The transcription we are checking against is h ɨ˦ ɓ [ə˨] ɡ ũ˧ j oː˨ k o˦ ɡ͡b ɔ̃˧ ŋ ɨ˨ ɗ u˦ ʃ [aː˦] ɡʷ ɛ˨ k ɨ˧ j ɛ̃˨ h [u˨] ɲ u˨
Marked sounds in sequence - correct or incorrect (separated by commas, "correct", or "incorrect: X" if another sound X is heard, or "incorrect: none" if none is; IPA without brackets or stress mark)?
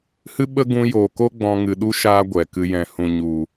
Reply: incorrect: ə˦, correct, incorrect: ũ˨